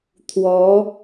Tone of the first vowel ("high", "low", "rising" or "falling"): rising